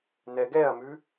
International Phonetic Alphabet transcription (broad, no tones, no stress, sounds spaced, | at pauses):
n ɛ ɡ ɛ ɐ̯ m ʉ